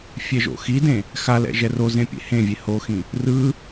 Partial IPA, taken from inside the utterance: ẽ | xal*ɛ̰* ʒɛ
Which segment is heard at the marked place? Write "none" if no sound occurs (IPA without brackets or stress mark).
ɛ̰